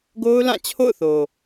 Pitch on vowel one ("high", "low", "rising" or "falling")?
high